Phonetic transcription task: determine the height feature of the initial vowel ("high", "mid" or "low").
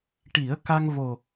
high